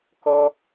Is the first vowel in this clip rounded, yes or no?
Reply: yes